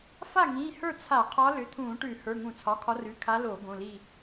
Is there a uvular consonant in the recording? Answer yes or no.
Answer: yes